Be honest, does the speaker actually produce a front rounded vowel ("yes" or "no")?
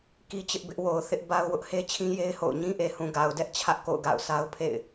no